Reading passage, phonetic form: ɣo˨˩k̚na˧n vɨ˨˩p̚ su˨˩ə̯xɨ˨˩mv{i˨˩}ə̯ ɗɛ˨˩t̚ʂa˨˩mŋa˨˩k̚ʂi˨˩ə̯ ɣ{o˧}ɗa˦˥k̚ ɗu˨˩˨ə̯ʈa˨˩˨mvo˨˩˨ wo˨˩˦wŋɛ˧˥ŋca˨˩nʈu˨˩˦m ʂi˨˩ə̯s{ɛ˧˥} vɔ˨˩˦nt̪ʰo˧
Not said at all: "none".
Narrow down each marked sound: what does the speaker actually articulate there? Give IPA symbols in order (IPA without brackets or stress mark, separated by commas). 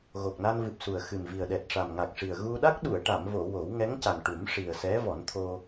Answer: i˨˩, u˧, ɛ˧˥